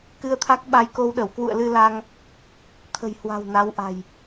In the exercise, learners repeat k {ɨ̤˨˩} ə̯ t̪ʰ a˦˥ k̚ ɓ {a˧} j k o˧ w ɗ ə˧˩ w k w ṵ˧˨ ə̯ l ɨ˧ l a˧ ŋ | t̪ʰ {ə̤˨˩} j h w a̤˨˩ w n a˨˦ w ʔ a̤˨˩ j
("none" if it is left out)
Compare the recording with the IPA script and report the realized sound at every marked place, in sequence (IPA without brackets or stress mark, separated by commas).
ɨ˧, a˧, ə̤˨˩